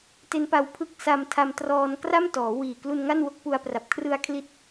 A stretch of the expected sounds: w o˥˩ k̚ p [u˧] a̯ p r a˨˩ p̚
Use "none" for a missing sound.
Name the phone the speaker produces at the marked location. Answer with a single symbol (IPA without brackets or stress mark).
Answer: u˧